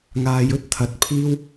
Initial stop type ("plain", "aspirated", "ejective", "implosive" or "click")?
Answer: plain